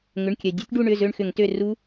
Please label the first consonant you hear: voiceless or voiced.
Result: voiced